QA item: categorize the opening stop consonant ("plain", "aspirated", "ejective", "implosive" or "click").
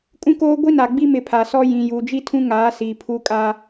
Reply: ejective